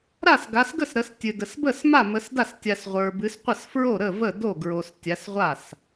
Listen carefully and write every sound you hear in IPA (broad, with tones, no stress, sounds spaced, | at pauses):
ɾ a˥˩ s ɡ a˨˦ s ɡ ə˥˩ s ɾ ə˨˦ s tʲ ɨ˨ d ə˨ s b ə˥˩ s m a˥˩ m ə˨˦ s d a˥˩ s tʲ a˨ s ʁʷ ə˞˨ b ɨ˨˦ s qʷ ə˥˩ s f ɹ o˥˩ ɾ ə˥˩ v ə˥˩ d o˥˩ ɡ ɹ o˨ s tʲ a˨˦ s ʁʷ a˥˩ s